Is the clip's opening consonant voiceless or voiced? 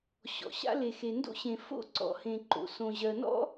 voiceless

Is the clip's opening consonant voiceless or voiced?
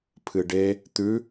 voiceless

